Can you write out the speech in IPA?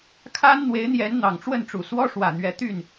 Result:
kʰ a˦ n n̪ w e˨˦ ɪ̯ n̪ j ɛ˨˦ n n̪ ɑ˨˩ ŋ ʈ͡ʂ w ə˥˨ n ʈ͡ʂ u˨˩ s w ɔ˦ ʂ w ä˨˩ n̪ ɥ ɛ˨˦ t̪ y˥˨ n

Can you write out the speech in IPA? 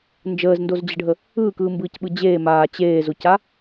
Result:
n d͡ʒ əː z n d o z d͡ʑ ə ɖʱ ə | ɯː k ɯː m b ɯː c ɓ ɯ d͡ʑ eː m aː t͡ɕ eː z o c a

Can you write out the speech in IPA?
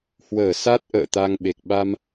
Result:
h w əː˧˩ s a˦˥ t̚ ʔ ə̰ː˧˨ t̪ a˧ ŋ ɓ e˨˩ k̚ ɓ a˧ m

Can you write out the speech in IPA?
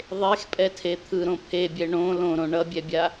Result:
ðˤ e x pʼ ɛ tʰ e t̪ʰ ɯ ɾ õ pʰ e bʲ ɛ ɳ õ l õ ɾ õ ɳ ʌ bʲ ɛ bʲ a

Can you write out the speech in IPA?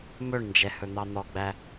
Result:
m ɵ ɳ n d͡ʒ ɛ h ɵ n̪ ɑ n̪ ɔ ɡ͡b æ

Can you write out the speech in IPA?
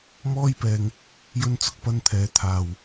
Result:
m ɔː˥ j p ɛː˧ ŋ | j ɵ˧ n t͡s ʊ˨ k̚ p ɐ˧ n t̪ʰ ɛː˨˧ t̪ʰ aː˨ w

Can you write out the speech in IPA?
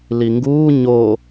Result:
l i ŋ ɡ uː ɲ o

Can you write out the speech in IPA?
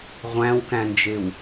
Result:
ʁʷ æ̃ w k æ̃ n d͡ʒ e w

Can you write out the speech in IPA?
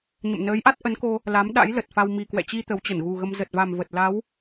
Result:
ɲ ə̰˧˨ m n əː˨˦ j ʔ a˦˥ t̚ ʔ ə˨˦ n k o˧ | l a˨˦ m ɗ a̰˧˥ j l ə˨˩ t̚ f a˧ w m i˨˩ k w ɛ̰˧˨ t͡ɕ i˧ t̪ ə˨˦ w t͡ɕ ə˧˩ n ɣ u˨˩ ɣ ə˧ m z ə˨˩ t̚ v a˨˩ m v ə˨˩ t̚ l a˨˦ w

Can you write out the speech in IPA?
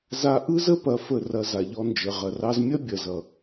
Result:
z a˧ ʔ ɯ˦ z ə˦ p ɐ˨˦ f ə˦˨ r ɐ˧ z a˨ ʎ ɔ˧ n d͡ʒ ə˨ ʁ ɐ˨ r ɑ˧ z mʲ ɐ˦ bʲ ɐ˨ z ʌ˨

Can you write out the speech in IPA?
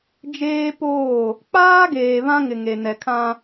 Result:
d͡ʒ eː˦ p oː˦˨ | k͡p aː˦ ɡ eː˨ β ã˦ ŋ ɪ˨ ŋ e˨ n ɛ˨ kʰ ã˦

